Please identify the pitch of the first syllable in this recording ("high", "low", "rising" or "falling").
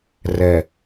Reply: low